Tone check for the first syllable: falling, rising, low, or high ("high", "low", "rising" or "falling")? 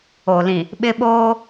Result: low